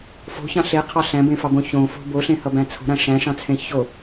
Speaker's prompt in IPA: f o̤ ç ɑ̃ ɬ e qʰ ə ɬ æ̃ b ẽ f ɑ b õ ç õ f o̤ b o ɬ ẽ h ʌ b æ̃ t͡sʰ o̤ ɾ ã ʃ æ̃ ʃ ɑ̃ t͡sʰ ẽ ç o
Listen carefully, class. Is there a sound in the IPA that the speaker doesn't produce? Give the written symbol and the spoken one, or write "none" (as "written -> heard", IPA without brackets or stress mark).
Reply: ə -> ɑ